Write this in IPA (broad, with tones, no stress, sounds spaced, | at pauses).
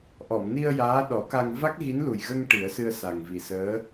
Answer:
ʔ ɔ˨˩˨ m n i˧ ə̯ j aː˧˥ ɗ ɔ˨˩˦ k a˧ ŋ v a˦˥ k̚ ɣ i˧˥ n l u˨˩ j ɣ ə˧ ŋ ʈ i˨˩˦ ə̯ s ɨ˧ ə̯ s a˨˩ ŋ v i˨˩ s əː˧˥